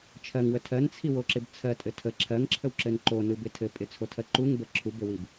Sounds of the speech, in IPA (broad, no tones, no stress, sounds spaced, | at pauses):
t͡ʃʰ ɜ ŋ w ə tʰ ɜ n t͡sʰ i w o ǁ ɪ b t͡sʰ ɜ tʼ ɘ tʰ ə ǁʰ ɜ ŋ ǁʰ ə w ǁ ɘ n ǃ o n ɯ b ɪ tʰ ɘ pʼ ɪ t͡sʰ o tʰ ɜ ǃ u ŋ b ə ǁʰ u b ɘ w i b